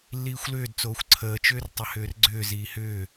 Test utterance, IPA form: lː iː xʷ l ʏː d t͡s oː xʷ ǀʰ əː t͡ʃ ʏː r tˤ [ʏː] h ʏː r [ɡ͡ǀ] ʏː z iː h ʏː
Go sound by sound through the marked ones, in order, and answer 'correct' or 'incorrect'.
incorrect, correct

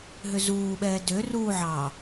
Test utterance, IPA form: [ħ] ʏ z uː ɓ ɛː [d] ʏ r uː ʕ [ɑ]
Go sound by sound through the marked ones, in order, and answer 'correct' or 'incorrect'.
incorrect, correct, correct

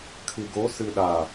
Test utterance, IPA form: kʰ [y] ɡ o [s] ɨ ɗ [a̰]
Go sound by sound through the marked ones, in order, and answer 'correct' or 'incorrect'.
incorrect, correct, incorrect

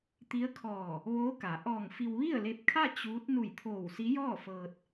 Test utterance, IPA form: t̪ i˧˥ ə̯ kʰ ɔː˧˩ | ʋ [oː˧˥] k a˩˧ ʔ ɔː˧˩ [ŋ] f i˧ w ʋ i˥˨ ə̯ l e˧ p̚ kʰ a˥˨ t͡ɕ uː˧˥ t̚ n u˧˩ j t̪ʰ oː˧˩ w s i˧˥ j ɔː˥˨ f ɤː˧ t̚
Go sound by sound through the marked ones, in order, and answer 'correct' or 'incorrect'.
correct, correct

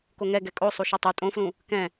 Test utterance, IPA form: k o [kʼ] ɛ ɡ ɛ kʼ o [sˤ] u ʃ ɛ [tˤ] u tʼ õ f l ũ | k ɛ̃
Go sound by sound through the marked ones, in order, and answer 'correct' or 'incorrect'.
incorrect, correct, correct

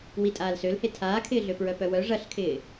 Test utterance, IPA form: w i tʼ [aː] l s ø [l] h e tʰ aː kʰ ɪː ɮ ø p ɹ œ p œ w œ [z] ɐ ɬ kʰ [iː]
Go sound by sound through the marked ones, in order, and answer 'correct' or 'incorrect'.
correct, correct, incorrect, incorrect

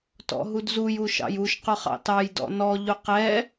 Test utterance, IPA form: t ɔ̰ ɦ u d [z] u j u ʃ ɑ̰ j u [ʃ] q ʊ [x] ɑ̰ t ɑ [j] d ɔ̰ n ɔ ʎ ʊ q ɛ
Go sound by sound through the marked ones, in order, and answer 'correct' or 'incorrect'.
correct, correct, incorrect, correct

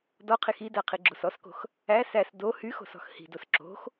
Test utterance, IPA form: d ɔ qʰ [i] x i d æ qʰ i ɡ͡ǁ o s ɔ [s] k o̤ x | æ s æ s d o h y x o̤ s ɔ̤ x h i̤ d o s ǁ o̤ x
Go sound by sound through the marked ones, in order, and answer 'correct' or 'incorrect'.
correct, correct

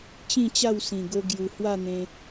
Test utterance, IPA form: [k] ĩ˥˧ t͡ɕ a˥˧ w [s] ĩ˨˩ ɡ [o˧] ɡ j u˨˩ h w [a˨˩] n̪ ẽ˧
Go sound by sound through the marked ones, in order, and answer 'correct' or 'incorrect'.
incorrect, correct, correct, incorrect

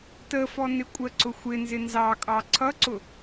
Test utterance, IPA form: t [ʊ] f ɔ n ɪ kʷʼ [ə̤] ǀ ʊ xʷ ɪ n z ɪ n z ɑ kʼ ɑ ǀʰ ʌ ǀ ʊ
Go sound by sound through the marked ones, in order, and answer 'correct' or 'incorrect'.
incorrect, incorrect

